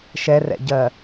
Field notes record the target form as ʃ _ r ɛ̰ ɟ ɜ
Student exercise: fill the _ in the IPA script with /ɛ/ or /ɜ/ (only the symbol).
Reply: ɛ